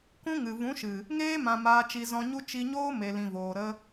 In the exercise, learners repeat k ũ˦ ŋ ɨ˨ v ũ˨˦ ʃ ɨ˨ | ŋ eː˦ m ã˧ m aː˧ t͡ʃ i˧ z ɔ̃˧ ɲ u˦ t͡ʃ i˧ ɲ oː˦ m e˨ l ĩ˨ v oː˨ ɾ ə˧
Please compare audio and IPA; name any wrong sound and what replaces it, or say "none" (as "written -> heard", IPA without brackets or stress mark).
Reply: none